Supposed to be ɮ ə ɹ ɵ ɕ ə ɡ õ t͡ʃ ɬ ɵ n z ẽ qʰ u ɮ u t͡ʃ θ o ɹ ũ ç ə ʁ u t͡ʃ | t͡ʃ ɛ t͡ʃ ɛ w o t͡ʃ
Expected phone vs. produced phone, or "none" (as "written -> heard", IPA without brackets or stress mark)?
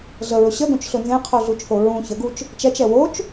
ʁ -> ɡ